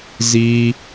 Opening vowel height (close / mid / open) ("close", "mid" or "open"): close